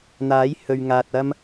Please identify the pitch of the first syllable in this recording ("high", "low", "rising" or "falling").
rising